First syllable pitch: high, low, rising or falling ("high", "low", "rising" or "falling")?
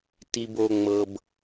low